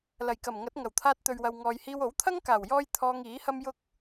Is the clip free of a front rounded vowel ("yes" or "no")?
yes